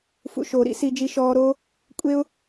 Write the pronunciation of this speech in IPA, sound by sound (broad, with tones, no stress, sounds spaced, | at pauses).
f ṵ˨ ʃ oː˨ ɾ ḭ˦ s i˧ d͡ʒ i˧ ʃ ɔː˧ ɾ oː˦ | kʷʼ e˦ ʊ̯